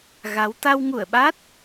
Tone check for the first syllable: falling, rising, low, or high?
rising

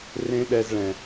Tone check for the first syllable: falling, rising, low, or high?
high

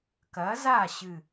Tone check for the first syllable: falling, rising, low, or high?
rising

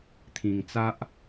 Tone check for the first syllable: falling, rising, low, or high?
low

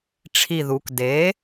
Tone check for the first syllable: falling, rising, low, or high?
low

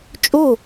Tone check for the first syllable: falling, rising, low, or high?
falling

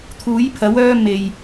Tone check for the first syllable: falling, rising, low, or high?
rising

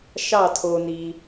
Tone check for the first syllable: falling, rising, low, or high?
falling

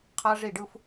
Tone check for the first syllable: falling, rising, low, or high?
high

